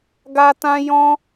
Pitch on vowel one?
high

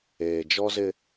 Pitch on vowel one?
low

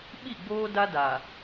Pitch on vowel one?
falling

